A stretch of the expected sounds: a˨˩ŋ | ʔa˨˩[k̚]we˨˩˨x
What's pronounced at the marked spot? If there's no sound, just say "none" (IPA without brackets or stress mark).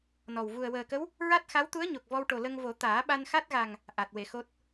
t̚